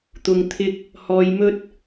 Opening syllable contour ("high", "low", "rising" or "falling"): low